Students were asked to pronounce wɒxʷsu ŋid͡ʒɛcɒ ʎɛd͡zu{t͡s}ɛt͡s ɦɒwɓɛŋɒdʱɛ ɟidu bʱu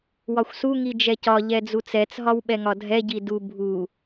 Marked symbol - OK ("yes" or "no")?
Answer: yes